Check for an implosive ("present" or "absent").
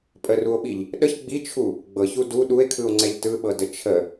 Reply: present